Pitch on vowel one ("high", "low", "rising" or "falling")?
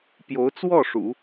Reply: rising